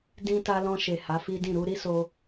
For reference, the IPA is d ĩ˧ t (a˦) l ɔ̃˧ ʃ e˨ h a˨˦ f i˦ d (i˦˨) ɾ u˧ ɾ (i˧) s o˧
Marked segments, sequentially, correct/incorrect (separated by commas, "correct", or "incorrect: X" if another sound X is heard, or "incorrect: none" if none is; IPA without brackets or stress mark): incorrect: a˧, incorrect: ĩ˦˨, incorrect: i˦